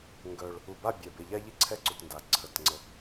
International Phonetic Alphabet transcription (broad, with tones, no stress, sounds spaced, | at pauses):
ŋ ɡ œ˧ ɭ | u˧˩ b a˥˧ bʲ ɛ˧˩ b e˧ ʎ a˥ ʎ i˥ ǀʰ ɛ˥ ǀ u˧ t n d a˧˩ ǀʰ ə˧˩ t ŋ͡ǀ ə˧